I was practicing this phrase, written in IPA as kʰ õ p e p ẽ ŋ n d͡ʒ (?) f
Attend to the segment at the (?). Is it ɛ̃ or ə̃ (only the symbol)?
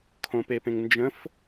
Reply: ə̃